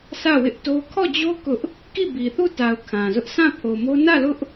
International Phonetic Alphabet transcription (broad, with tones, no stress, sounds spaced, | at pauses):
s ä˦˨ w ɪ˦ ʔ t o˦ kʰ ɔ˦˨ d͡ʑ o˦ k ʊ˦ ʔ | k i˦˨ b i˨ θ u˦˨ t a˨ ʊ̯ kʰ ã˨ z ʊ˦ ʔ sʰ ã˦˨ pʰ o˨ m o˦ n ä˦˨ l ʊ˦ ʔ